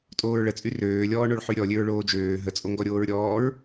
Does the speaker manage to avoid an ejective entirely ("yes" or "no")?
no